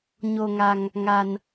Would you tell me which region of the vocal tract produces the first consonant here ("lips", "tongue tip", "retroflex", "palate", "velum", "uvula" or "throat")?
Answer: palate